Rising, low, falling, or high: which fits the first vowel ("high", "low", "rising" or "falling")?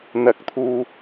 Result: rising